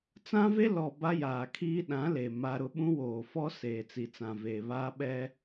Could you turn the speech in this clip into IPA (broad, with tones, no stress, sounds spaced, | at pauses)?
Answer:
t͡s ã˦ v e˦ l ɔ˨ b a˦ j aː˨ kʰ iː˦ ɗ ã˨˦ l e˨ m a˦ ɾ ʊ˦ ɓ ũ˦ w oː˨ f ɔ˦ s eː˨ t͡s i˨ t͡s ã˨ v eː˨ β aː˦ ɓ ɛ˦